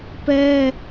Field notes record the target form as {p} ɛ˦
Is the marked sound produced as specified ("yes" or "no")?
yes